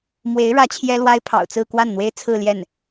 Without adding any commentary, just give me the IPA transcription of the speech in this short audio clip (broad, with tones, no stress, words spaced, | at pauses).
mwe˧˥ɪ̯ ɻä˧˥ t͡ɕʰjɛ˥lwa˥ɪ̯ pʰɑ̰˨˩ʊ̯t͡sɹ̩˥˧kwa˥˩nn̪we˥ɪ̯ t͡sʰɹ̩˥˧ljɛ˥˩n